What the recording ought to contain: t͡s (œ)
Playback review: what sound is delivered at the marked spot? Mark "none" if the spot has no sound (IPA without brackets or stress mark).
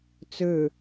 ø